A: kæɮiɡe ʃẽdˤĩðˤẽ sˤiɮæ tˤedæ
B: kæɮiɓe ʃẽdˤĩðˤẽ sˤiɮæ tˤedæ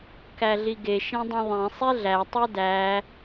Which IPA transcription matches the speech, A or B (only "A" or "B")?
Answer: A